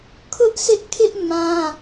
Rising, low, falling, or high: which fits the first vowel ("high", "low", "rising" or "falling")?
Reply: high